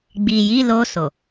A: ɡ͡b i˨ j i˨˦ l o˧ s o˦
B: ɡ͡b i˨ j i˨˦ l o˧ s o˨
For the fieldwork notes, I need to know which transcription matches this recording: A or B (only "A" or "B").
B